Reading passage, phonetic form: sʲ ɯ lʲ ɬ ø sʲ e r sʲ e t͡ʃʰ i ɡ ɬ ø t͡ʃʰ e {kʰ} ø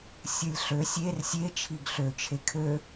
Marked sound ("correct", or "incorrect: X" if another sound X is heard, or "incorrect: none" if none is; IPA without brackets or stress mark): correct